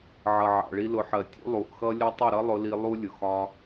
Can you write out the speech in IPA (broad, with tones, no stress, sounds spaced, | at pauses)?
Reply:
ʕ ʌ˨ ʕ ɑ̰˨ ɭ i˧ l ʊ˨˦ ħ ɜ˨ tʲ ṵ˦ lˠ u˨ ʔ x ʌ˦ lʲ ʌ˦ tˤ ʊ˦˨ ɾ ʌ˦ lˠ ʊ˧ l i˧ lˠ u˦ lʲ ʊ˨ x ɒ˦